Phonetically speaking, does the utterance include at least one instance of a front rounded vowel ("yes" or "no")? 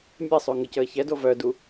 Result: yes